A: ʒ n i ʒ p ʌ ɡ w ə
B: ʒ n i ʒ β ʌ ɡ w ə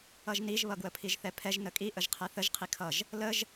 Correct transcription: B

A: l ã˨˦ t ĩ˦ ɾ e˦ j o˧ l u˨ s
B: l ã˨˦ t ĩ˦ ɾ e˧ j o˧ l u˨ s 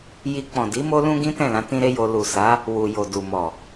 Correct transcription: A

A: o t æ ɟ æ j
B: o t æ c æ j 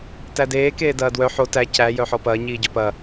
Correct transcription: B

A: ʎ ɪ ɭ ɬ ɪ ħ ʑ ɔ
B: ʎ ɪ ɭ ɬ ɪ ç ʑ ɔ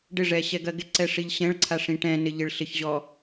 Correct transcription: B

